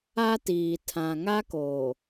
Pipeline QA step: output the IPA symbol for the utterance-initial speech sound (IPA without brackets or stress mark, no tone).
a